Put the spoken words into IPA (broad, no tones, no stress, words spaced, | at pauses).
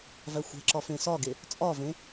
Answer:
væxʷæ̤ǁɒ fẽsɒɡe | t͡sʼɒvẽ